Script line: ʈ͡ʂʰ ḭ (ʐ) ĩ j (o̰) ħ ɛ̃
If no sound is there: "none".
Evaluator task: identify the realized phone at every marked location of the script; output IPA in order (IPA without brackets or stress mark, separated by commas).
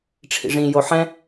ʐ, o